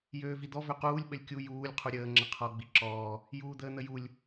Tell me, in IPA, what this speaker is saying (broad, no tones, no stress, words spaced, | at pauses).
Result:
jøːvid̪ɔ vøquːlʲ ɓəlʲkʲu juːlʲ qʰuɾʲəː ŋ͡ǁəqʰɔ ɡ͡biǁɔː | juːd̪əːn̪əjulʲ